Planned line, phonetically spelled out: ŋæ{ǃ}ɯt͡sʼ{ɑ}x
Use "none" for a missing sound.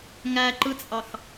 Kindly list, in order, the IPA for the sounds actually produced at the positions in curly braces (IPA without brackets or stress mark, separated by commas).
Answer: ǃ, ɑ